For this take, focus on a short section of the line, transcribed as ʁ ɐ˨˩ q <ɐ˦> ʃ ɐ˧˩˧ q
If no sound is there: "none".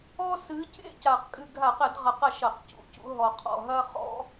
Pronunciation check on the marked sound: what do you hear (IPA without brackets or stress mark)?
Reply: ɐ˥˩